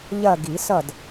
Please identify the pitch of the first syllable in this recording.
falling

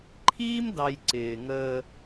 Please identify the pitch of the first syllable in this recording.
high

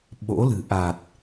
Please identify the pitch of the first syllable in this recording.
rising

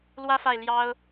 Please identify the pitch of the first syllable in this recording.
high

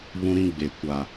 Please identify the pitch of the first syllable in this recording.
high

